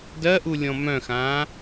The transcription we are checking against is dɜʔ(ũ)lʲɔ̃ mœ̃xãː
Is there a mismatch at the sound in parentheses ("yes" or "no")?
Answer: yes